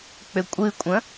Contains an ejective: yes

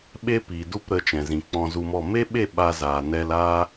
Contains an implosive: yes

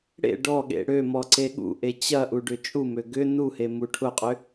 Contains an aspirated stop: yes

